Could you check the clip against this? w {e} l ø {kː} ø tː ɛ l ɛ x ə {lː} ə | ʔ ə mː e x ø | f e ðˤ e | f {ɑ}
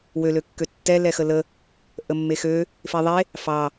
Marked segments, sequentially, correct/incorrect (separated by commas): incorrect, correct, incorrect, correct